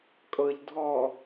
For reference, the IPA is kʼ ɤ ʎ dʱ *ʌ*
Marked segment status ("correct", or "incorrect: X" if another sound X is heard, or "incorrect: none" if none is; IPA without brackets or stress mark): incorrect: ɔ